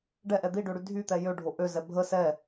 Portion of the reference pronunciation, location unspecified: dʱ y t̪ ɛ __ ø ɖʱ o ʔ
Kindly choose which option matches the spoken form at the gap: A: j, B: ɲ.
A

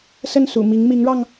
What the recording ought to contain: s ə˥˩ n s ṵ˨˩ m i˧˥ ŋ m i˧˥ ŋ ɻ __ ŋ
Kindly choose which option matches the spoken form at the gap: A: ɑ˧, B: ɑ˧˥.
A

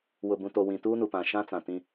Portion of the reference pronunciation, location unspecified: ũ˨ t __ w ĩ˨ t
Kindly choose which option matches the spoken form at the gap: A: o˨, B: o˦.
A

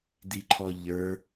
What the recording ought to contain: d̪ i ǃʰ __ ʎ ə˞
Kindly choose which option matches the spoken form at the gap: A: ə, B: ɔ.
B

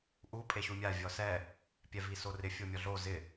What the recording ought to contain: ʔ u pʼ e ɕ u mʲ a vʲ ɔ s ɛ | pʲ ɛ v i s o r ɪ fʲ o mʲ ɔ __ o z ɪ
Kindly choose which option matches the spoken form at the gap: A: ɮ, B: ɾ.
A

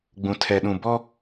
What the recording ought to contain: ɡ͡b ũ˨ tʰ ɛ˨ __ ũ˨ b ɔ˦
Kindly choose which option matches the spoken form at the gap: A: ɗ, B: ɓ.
A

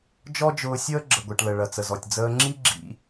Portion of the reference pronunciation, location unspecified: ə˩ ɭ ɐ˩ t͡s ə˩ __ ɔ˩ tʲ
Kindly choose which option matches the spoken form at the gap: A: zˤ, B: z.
B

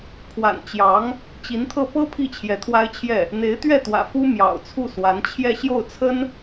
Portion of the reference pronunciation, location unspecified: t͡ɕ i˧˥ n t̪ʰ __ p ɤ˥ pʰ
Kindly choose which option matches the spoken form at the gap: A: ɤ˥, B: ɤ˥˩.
B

